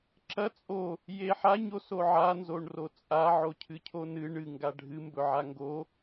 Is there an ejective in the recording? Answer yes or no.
yes